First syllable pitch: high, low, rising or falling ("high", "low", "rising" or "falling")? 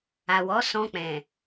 low